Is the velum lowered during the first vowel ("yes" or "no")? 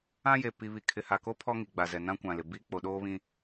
yes